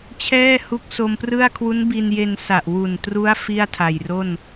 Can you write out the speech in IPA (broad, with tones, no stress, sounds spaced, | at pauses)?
t͡ɕʰ ɛː˥˩ h u˦˥ k̚ s o˧ m p r ɯ˥˩ a̯ kʰ w u˦˥ n b i˧ n j e˧ n s a˨˩ ʔ w u˨˩ n t r u˦˥ a̯ f i˥˩ a̯ tʰ a˨˩ j r o˥˩ n